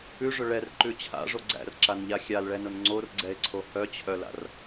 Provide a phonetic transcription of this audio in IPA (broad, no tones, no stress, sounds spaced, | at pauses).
ʉ ʐ ʊ ɭ ɛ r ǃ ʉ t͡ɕʰ a̰ ʐ o ɡ͡ǀ æ̰ r ǁ a n ʎ a xʲ a l ɭ ɛ n ʊ n ŋ͡ǀ o r ɡ͡ǀ ɛ e̯ ǀʰ o h œ t͡ɕʰ œ l a̰ r